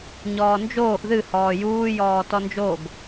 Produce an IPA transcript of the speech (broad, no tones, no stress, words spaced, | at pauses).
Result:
ɲɔːnd͡ʒoːʔ ðɨhɔː juːjɔː tɔnd͡ʒoɡ